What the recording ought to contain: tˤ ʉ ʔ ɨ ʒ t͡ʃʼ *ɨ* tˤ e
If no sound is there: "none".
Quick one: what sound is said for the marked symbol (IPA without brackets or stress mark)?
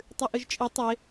ɨ